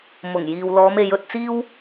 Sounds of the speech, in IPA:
m ʊ˨˩ ŋ j iː˨ w l ɔː˨˧ m e˨˧ j ɵ˧ t̚ t͡s iː˥ w

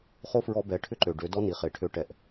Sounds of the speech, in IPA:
χ o˦ f ɹ ɔ˧ b ɛ˨˦ ʈʰ ʏ˦ ǃ ø˨ ɖ ø˨˦ d ɔ˦ n i˨ χ e˨ ʈʰ ø˧ ʈ ɛ˨ ʔ

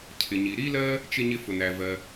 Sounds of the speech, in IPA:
cʰ ɪ˩ ɲ i˩ ɾ i˥ l ɜ˥ | t͡ʃ ɪ˥ ɲ ɪ˥ f ʊ˩ n æ˩ v ɜ˩

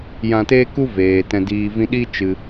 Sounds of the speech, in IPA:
j ã˧ t eː˦ k u˦ v eː˨ t ɛ̃˧ d iː˧ v ĩ˦ ɗ i˦ t͡ʃ ɨ˧

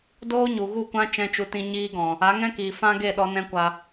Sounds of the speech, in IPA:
d oː˦ ɲ u˨ ɣ u˦˨ kʷ ã˦ t͡ʃ ɛ̃˦ t͡ʃ u˧ t ĩ˦ ɲ iː˧ ɡ ɔ̃˨ | a˨˦ ŋ ɛ̃˦ k iː˨ f ã˦ ɡ e˦˨ ɗ ɔ˧ n ɛ̃˦ kʷ a˧

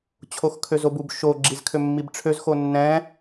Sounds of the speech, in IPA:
t͡ɕʰ o x kʰ ø z o b u b ʃ o ɡ͡ǁ i z kʰ ø mː i b ʈ͡ʂʰ ø z x o nː ɛ̃

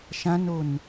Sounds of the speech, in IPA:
ʃ ã n o n

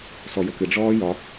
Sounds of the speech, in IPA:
s ɔ j ə k ɨ ɖ͡ʐ ɔː j ɒ

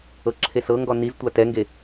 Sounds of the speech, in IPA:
ɤ ǁʰ e s ɤ ŋ ɡ ɔ n i z tʷ a t ɛ ŋ ɡ e

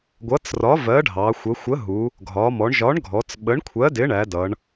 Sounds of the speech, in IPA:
ɡʷ ʌ˨˥ t͡s r ɒ˨˥ v ɜ˨˥ ɖʱ ɑ˩˧ xʷ ə˩˧ xʷ ə˨˥ ɦ u˩˧ | ɡʱ ɒ˩˧ m ɔ˩˧ ɳ ʒ ɒ˨˥ ɳ ɡʱ ɔ˩˧ t͡s ɓ ə˨˥ ɳ kʷʰ ɜ˨˥ d ɪ˨˥ ɳ æ˩˧ d ʌ˩˧ ɳ

